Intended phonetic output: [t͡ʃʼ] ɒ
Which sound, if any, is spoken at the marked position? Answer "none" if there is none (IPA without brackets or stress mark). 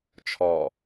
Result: t͡ʃʰ